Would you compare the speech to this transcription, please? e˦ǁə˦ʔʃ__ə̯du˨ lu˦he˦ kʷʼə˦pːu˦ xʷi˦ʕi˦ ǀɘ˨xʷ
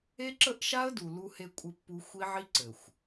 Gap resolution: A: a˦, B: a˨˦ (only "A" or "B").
A